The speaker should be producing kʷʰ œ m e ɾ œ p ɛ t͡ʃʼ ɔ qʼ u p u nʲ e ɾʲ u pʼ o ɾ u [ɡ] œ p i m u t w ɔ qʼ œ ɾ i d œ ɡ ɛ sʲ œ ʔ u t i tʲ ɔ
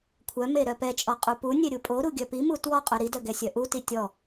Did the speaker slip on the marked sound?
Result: yes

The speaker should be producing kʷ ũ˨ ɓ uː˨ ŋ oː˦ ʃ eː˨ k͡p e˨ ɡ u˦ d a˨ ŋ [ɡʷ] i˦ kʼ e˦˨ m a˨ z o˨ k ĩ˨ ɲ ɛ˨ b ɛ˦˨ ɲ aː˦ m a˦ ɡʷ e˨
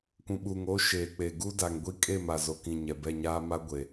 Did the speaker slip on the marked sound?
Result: no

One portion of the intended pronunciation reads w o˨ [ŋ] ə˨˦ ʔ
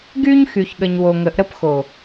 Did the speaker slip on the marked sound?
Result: no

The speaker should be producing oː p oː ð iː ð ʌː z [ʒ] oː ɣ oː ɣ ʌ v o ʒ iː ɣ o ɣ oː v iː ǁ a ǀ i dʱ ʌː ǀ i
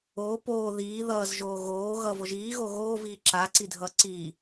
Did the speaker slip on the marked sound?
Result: no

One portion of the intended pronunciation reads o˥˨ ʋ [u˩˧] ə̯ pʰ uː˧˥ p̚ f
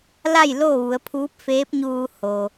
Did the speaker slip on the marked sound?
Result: no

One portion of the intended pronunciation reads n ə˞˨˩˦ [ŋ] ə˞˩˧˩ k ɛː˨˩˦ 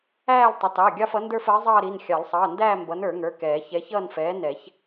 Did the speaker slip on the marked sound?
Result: no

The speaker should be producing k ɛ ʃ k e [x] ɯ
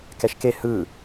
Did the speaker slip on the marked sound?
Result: yes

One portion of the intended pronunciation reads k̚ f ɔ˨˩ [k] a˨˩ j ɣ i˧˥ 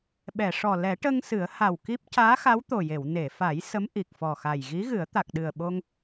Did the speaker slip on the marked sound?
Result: yes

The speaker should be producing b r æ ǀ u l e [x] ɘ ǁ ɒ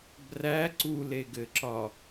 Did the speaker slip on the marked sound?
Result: yes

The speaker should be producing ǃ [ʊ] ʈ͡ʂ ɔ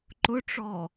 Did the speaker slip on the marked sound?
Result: no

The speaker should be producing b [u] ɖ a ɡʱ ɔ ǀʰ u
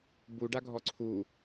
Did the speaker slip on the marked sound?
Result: no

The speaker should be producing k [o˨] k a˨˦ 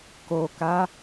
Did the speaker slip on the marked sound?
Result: no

